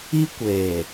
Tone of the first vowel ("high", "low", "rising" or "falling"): high